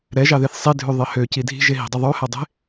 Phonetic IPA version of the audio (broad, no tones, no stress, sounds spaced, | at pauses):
ɾ ɛ ʒ ɑ ð e θ sˤ i dʱ ʉ ðˤ e h ø c i dʱ i̤ ʒ e ɦ i̤ dˤ i ðˤ ʉ h æ dˤ e̤